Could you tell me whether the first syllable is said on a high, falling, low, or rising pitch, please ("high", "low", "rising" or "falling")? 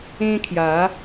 high